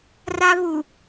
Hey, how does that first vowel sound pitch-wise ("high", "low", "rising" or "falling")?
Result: high